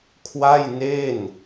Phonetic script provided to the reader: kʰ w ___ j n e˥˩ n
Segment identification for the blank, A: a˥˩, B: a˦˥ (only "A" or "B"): A